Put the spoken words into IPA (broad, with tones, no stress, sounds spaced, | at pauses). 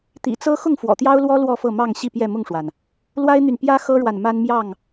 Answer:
t̪ ḭ˨˩ t͡s ɤ˦ x ʊ˥˨ ŋ f w ɔ̰˨˩ t̪ j ɑ˦ ʊ̯ l w ɔ˦ l w ɔ˥˨ f ɤ˥˨ m ɑ˥˨ ŋ ɕ i˥˨ p j ɛ˥˨ m ʊ˥˨ ŋ ʂ w a˩ n | l w a˦ ɪ̯ n̪ y˨ n p j ä˦ x ɤ˦ ɻ w a˨ n m a˦ n m j ɑ˥˨ ŋ